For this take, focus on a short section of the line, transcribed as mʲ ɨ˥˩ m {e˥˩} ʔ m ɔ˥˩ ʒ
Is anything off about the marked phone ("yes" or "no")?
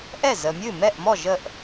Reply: yes